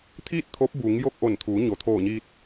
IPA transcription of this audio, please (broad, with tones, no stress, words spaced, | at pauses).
t̪ʰiː˥˨t̚ t̪ʰo˧˥p̚ buː˩˧ŋjo˥˨k̚ ʔo˧˩nt̪ʰuː˩˧ɲo˩ t̪ʰoː˧˩ɲiː˧t̚